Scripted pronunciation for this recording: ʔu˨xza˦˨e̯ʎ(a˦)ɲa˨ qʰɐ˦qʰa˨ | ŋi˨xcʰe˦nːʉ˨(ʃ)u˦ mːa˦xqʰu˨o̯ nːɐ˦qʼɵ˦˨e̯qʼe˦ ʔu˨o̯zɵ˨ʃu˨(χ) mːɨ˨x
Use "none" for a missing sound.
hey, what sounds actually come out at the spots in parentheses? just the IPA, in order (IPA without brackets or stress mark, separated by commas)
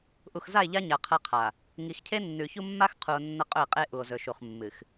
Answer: a˦, ç, χ